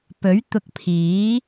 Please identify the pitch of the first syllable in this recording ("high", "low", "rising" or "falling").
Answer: rising